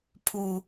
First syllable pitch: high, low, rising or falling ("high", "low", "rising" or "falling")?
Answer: low